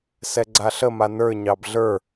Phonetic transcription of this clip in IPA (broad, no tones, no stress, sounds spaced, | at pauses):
s ɛ ɡ͡ǀ a ɬ ə m a n ə˞ ɲ ɑ b ɮ ə˞